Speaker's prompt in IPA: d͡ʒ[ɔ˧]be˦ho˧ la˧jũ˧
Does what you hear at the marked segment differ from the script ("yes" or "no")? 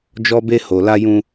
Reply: yes